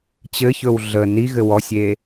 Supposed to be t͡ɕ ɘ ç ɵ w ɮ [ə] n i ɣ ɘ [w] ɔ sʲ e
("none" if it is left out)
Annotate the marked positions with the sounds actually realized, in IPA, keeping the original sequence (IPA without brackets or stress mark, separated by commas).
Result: ə, w